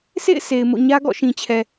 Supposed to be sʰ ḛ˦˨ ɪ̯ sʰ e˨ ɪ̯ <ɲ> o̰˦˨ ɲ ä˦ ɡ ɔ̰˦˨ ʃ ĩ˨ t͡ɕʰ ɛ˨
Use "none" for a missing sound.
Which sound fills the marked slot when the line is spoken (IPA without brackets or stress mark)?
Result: m